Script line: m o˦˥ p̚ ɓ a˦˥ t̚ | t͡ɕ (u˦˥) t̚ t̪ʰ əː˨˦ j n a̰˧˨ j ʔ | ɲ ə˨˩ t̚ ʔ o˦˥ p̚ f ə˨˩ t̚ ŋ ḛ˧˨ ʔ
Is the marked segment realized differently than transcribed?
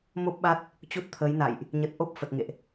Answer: no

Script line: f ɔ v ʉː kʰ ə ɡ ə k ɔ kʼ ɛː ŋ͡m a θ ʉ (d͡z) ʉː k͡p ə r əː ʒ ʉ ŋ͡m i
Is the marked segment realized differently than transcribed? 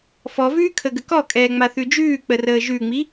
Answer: yes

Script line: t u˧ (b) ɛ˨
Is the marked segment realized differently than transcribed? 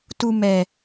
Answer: yes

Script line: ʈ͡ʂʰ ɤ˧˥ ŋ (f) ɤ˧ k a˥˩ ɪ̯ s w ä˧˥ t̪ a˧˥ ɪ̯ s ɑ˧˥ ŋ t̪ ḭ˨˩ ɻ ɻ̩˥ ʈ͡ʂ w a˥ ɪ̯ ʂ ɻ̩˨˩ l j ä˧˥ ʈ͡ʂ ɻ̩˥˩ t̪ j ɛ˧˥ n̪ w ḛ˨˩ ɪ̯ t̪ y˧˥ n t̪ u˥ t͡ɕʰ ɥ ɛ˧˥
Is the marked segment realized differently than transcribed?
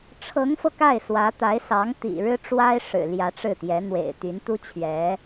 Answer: no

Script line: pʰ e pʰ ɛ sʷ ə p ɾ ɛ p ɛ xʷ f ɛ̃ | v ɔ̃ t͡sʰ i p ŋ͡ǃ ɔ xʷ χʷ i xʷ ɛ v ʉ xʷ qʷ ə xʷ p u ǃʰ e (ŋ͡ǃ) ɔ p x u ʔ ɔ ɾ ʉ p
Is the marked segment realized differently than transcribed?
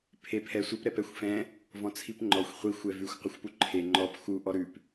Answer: no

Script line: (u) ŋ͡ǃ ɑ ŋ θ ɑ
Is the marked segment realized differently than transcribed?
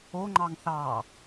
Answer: yes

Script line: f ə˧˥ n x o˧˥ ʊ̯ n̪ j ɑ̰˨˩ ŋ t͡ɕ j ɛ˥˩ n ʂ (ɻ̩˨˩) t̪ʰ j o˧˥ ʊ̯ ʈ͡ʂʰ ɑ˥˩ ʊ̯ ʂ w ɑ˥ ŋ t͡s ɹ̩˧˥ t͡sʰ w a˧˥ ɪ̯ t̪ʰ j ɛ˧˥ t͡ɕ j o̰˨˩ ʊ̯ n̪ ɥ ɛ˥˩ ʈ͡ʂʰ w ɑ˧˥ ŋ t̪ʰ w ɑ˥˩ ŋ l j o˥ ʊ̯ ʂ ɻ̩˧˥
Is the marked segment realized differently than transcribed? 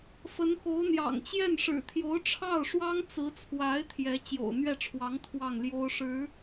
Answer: no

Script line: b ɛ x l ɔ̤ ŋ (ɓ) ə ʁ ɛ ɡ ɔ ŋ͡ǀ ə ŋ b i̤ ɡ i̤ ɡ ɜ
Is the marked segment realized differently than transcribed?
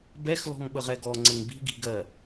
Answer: no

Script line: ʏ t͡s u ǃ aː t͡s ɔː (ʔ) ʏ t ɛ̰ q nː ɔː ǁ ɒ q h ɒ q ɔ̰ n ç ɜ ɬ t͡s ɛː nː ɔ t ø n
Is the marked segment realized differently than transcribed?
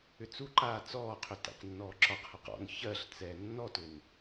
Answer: yes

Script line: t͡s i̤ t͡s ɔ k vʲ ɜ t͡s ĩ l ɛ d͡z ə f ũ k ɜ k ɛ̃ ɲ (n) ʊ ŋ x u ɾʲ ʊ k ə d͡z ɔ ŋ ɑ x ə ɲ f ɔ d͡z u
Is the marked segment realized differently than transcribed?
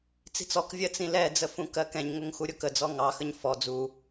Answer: yes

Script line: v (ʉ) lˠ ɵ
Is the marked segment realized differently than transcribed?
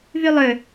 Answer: no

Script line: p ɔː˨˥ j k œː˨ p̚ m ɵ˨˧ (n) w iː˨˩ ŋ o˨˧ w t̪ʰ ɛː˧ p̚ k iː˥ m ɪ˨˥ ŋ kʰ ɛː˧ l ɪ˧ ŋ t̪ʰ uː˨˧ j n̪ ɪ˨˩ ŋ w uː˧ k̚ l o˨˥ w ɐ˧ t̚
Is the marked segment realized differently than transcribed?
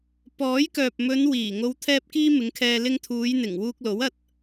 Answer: no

